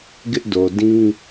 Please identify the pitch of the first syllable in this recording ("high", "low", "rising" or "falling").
high